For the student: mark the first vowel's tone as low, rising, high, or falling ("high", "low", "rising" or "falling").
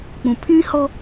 low